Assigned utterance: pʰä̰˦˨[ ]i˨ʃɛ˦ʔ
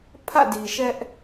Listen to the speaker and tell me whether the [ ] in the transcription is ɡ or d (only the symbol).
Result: d